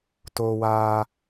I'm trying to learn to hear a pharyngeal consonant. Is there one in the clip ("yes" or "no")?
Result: no